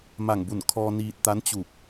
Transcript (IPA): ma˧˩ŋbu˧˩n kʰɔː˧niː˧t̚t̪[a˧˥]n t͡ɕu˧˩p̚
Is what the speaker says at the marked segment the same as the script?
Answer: yes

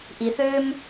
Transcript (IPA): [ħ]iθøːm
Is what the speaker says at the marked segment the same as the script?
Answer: no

